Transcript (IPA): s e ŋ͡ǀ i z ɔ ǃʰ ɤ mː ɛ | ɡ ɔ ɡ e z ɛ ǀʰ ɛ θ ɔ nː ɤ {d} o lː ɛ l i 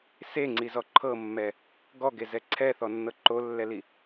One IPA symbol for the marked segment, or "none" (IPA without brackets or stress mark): ǃ